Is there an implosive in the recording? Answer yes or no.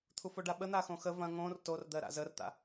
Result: yes